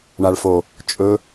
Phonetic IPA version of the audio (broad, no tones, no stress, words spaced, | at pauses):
ɳaɭfo | t͡ʃʼɵ